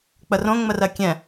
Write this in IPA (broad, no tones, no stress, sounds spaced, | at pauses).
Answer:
k͡p ə r õ ŋ͡m ə r ɜ kʲ ɛ̃